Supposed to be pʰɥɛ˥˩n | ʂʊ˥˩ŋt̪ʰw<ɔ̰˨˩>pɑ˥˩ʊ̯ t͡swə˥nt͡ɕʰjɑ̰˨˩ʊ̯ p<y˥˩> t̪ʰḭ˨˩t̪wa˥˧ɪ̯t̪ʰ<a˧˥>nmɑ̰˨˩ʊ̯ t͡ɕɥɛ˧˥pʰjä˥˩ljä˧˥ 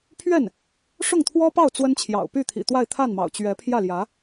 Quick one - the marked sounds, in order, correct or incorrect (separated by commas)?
incorrect, correct, incorrect